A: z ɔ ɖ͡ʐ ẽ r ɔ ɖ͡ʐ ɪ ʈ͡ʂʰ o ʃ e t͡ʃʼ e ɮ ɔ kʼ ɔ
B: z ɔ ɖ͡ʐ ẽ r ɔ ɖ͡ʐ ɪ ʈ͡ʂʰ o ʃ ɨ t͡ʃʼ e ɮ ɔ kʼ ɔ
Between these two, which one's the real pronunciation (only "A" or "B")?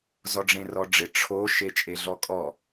A